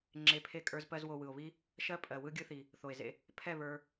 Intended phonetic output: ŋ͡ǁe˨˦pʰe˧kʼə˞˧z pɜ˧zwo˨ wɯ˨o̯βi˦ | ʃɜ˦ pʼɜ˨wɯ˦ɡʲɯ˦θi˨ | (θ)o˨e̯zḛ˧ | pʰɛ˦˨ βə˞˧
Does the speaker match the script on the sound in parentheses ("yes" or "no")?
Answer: yes